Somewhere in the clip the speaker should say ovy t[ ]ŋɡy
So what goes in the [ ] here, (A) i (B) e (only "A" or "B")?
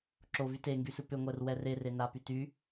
B